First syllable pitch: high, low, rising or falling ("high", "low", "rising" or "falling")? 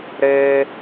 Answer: high